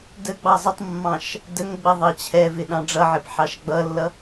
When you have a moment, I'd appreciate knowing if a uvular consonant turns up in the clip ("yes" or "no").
no